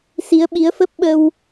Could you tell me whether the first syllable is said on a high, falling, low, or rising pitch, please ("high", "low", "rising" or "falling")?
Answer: rising